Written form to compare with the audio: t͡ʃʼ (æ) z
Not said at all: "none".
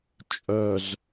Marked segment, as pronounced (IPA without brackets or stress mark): œ